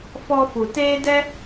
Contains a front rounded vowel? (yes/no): no